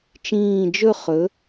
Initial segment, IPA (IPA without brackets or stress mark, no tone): t͡ʃ